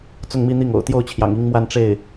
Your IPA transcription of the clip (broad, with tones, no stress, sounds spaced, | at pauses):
t͡s ʊ˥˧ ŋ m i˥˧ n̪ i˥˩ ŋ o̰˨˩ ʊ̯ t̪ j o˥˩ ʊ̯ t͡ɕʰ j ɑ̰˨˩ ŋ i˥ ŋ m w a˥˧ n ʈ͡ʂ e˥˩ ɪ̯